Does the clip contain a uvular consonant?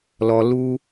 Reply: no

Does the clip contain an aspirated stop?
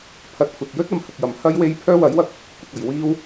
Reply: yes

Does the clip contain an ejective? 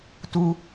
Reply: no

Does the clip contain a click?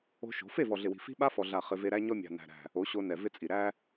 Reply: no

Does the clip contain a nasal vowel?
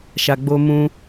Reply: yes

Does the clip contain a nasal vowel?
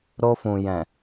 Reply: yes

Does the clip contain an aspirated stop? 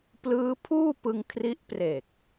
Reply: yes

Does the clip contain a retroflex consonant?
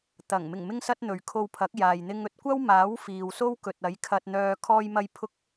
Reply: no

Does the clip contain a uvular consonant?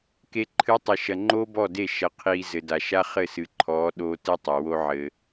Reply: yes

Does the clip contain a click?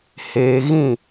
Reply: no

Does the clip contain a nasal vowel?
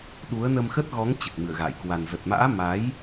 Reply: no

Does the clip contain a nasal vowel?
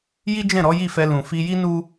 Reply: yes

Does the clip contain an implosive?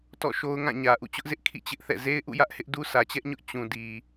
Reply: no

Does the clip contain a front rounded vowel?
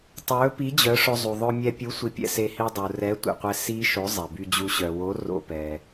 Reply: yes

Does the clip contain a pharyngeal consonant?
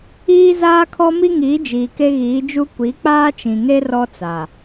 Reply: no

